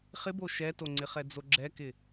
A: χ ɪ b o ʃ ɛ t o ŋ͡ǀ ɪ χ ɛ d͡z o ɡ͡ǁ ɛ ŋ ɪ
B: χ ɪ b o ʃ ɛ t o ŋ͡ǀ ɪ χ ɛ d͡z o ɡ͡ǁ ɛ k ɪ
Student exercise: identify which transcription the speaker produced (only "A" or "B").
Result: B